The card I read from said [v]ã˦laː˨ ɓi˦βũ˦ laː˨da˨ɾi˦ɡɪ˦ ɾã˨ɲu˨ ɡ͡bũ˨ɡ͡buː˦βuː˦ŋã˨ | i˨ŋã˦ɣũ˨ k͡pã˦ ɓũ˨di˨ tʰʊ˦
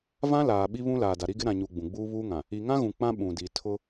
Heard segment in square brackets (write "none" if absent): v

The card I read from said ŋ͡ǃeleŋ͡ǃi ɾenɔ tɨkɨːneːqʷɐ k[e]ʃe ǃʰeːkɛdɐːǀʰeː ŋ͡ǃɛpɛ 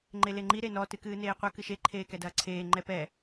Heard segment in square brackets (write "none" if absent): ɨ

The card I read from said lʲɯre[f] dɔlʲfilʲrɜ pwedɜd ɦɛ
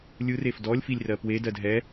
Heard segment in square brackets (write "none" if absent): f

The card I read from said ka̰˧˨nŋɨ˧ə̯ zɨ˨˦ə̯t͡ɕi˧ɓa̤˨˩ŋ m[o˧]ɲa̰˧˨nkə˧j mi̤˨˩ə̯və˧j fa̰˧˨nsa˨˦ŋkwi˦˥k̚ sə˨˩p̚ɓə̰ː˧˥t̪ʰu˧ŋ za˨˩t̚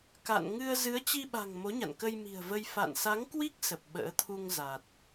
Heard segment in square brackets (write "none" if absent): o˨˦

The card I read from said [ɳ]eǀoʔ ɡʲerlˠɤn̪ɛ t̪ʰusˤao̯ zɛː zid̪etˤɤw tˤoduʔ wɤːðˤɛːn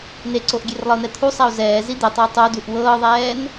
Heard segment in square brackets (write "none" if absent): n̪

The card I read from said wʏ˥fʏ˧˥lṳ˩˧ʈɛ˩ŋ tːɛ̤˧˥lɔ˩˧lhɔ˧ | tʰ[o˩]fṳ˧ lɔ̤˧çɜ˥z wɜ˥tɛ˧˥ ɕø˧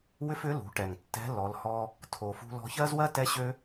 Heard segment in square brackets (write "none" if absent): o˩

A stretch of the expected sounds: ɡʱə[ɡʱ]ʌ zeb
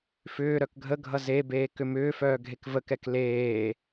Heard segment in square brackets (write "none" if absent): ɡʱ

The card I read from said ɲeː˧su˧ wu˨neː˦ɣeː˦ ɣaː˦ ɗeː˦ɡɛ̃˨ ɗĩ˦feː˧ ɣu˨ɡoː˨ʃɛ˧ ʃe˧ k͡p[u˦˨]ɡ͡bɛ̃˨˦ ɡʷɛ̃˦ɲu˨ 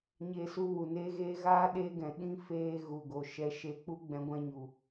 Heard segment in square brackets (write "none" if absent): u˦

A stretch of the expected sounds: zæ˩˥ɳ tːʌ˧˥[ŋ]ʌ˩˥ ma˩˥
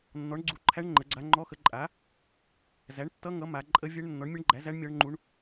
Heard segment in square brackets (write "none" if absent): ŋ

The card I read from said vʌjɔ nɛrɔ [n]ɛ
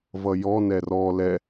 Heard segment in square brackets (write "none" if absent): l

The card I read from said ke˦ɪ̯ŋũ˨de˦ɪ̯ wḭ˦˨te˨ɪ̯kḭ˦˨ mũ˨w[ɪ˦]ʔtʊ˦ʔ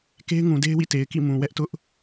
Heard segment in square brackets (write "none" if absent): ɛ˦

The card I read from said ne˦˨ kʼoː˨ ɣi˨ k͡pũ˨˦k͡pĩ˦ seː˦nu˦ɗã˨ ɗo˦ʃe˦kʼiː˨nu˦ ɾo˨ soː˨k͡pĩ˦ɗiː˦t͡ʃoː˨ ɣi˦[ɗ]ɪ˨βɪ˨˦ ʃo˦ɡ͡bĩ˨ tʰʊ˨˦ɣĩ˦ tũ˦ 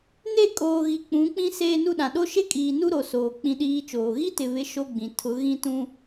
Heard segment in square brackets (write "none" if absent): t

